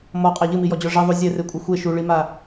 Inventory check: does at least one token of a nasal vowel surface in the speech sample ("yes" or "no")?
no